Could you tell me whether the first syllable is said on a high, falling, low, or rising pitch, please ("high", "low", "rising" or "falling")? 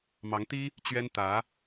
rising